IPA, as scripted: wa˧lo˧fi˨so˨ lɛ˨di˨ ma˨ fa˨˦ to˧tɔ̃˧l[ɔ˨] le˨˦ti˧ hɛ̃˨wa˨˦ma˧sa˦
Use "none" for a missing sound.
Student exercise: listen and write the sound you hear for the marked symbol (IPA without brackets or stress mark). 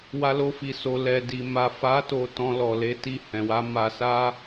ɔ˨